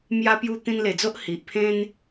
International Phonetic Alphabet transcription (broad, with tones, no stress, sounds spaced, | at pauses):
m j a˧ p j u˧ t̪ ĩ˧ n l e˨˩ d͡z o˦ ʔ h i˨ ʔ pʰ ẽ˦ n